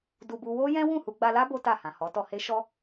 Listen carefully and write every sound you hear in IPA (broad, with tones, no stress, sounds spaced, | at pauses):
d u˧ b u˧ w o˦ j ɛ̃˦ w ũ˦˨ h u˧ ɡ͡b a˧ l a˦ b o˦ t a˦˨ h ã˨ h ɔ˨˦ t ɔ˧ h e˦ ʃ ɔ˦